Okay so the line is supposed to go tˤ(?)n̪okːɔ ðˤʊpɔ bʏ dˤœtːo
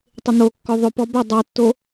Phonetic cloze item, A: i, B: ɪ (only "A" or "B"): B